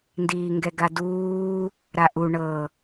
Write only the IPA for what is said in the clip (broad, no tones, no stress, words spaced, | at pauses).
ndiːŋɡɛɡaduː | ɾaʔu ɳɤ